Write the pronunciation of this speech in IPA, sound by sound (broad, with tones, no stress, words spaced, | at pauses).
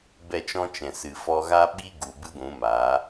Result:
bɛ˦˨t͡ʃɔ̃˦t͡ʃɛ̃˨ sɨ˨fɔ˧ɣa˦ ɓi˦ɡu˨ bɨ˦ɡʷũ˨˦maː˨˦